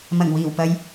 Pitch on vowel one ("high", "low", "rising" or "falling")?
low